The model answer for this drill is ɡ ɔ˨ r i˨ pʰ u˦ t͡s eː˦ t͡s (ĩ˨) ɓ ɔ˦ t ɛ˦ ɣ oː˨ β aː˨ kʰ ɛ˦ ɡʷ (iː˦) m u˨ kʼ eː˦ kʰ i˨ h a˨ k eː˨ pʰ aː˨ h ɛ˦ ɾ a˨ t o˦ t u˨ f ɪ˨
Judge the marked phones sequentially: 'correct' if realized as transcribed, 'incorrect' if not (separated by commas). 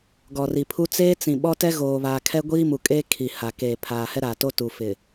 correct, correct